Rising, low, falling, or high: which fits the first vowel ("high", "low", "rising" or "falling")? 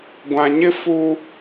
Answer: low